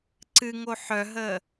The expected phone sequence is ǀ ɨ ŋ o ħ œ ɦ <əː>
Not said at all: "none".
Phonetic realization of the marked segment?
əː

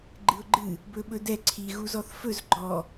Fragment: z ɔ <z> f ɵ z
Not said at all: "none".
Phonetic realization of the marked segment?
θ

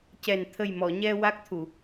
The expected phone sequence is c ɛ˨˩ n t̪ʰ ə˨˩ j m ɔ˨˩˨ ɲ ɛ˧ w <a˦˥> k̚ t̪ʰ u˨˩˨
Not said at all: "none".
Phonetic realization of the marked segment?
a˦˥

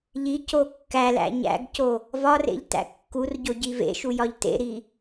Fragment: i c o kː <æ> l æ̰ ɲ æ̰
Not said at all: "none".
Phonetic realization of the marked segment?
æ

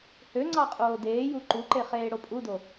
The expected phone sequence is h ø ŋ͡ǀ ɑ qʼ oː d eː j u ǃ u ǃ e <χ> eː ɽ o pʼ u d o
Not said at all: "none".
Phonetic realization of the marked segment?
χ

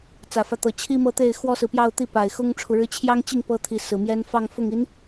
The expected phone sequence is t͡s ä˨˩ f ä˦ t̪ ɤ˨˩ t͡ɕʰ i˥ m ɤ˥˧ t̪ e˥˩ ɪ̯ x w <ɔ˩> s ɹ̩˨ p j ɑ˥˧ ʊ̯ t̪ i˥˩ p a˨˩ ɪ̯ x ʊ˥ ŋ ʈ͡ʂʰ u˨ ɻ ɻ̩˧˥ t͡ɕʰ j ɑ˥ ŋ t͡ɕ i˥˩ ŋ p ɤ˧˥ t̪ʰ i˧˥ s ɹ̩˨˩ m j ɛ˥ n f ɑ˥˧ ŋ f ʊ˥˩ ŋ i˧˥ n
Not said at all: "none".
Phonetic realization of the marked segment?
ɔ˥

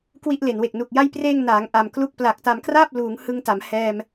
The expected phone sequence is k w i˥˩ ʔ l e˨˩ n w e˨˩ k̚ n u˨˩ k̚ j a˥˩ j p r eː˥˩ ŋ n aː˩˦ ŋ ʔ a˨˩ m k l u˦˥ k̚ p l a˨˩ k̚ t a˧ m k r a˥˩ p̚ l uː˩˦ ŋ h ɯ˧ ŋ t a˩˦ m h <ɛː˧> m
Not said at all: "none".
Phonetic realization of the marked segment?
ɛː˧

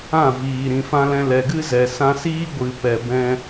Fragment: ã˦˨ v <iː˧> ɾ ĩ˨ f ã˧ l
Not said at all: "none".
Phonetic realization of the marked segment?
iː˨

